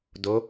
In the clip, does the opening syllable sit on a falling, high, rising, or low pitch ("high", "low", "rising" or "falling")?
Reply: rising